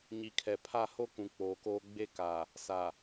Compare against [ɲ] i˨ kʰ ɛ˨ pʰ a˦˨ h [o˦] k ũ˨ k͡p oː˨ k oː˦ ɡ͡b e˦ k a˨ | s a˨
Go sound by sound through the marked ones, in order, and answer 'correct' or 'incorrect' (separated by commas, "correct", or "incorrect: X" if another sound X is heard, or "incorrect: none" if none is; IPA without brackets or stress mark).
correct, correct